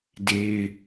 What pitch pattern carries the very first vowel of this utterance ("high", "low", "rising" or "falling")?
high